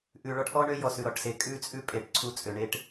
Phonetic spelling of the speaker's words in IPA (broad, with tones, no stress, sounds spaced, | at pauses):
ʔ ʉ˨ ɭ ɔ˦ ʈ ʔ ɔ˦ ɳ ø˦ j ɔ˨ s ʉ˨ ɾ ɔ˨ ʈ s e˨ kʼ ʉ˦ t͡sʼ ʉ˦ pʼ e˨ ʈ ǀʰ u˦ t͡sʼ ø˨ ɳ e˦ ʈ